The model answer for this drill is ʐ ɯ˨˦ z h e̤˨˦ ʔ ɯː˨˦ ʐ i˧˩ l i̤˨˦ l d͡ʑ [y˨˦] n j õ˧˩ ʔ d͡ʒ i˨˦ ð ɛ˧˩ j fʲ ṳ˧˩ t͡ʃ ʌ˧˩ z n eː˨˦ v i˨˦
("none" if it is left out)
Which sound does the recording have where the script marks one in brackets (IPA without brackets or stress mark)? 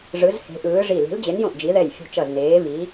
e˨˦